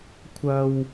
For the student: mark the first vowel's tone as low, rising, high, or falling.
high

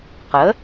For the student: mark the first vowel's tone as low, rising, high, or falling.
rising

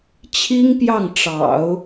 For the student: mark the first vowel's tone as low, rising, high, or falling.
high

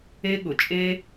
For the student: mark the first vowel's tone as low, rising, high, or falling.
high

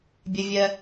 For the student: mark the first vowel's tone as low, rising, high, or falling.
high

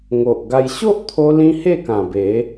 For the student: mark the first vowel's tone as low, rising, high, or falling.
low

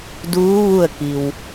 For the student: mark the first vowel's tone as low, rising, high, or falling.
rising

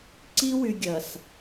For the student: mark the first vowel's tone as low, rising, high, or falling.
high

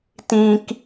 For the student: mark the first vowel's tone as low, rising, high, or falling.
high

